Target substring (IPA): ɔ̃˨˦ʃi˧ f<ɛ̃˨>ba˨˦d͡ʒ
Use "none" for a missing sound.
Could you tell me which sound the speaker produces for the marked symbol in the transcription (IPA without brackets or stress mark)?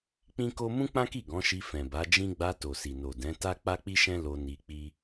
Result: ɛ̃˨